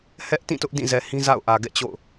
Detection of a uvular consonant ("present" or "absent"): absent